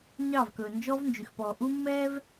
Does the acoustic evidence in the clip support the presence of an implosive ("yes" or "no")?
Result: no